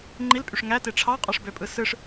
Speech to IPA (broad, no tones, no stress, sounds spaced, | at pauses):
ŋ͡ǃ i l pʼ y ʂ ŋ æ t e ʈ͡ʂʰ ɑ qʼ ɑ ʂ b ø pʼ ɯ s ɯ ʂ